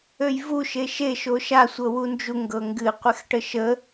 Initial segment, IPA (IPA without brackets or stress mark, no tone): ø